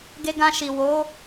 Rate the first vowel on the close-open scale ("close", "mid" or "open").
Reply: mid